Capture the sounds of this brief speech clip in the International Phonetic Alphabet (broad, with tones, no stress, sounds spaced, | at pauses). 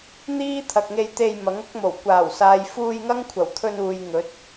n̪ iː˥ t̪ʰ ɐ˨ k̚ ŋ e˧ j t̪ e˧ j m ɐ˨˥ ŋ ʊ˥ k̚ m o˨˩ w kʷ aː˨˩ w s aː˨ j f uː˧ j ŋ ɐ˥ ŋ kʷʰ ɐ˨˩ w t̪ʰ ɵ˧ n uː˨ j ŋ ɵ˨˥ t̚